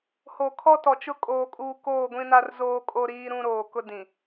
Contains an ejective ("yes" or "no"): yes